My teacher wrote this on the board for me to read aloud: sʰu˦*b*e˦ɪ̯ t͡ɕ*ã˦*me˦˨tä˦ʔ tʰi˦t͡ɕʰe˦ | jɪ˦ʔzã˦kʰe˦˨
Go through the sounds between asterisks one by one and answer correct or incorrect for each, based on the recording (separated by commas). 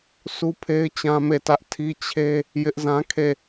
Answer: incorrect, correct